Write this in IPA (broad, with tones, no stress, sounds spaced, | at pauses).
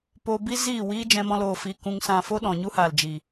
p o˧ b i˦ z iː˦˨ w iː˦ d͡ʒ ɛ̃˦ m ɔ̃˦ l oː˧ f iː˧ k ũ˧ ŋ s ã˧ f o˦ ɗ ɔ̃˨ ɲ u˦ h aː˨ l d͡ʒ i˨